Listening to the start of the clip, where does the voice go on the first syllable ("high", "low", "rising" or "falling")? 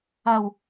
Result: low